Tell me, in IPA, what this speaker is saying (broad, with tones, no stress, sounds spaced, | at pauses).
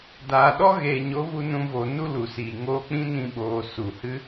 d aː˨ ɗ ɔ˦ ɣ eː˨ ɲ o˨˦ v u˧ n ũ˧ v o˨ n u˦ l u˨ s iː˨ ŋ oː˧ k͡p ĩ˦ n ĩ˧ ɓ oː˨ s u˨ h ɨ˦